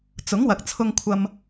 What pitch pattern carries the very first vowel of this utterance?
rising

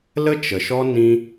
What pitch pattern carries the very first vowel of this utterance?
high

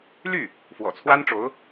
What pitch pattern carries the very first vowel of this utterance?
falling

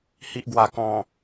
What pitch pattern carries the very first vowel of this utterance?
low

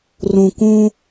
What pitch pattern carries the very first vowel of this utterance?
low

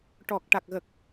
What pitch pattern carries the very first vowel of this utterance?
low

